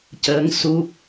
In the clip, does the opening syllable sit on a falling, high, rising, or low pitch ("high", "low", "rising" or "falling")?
rising